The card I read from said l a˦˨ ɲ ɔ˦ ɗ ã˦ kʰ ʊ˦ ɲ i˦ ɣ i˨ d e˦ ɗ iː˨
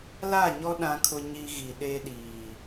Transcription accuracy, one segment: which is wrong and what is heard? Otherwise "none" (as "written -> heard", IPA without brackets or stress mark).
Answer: d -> ɗ